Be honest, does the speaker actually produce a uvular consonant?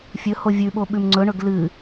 no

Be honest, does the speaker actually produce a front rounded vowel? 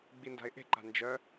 yes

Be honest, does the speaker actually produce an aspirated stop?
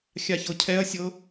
yes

